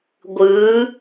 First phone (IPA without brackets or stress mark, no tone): ɡʷ